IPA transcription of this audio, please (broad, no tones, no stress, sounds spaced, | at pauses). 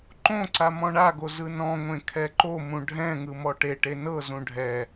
ǃ õ ǀ a m ɔ̃ ɳ a ɡ o z ɯ n ɔ̃ ŋʷ ẽ kʰ ɛ ǃ o m ũ ɖʱ ɛ̃ ŋ ɯ m ɔ ʈ e ʈ e n ɤ z ũ ɖʱ ɛ